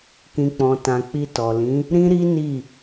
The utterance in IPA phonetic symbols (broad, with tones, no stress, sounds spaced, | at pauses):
k ĩ˨ k͡p ɔ̃˨ t ã˨ k͡p i˧ t ɔ˨ l ĩ˨˦ | ɾ ĩ˦ ɾ i˦ n i˦˨